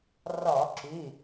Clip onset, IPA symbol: r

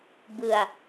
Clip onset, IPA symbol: b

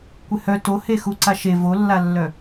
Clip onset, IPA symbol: kʷ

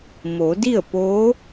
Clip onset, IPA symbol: m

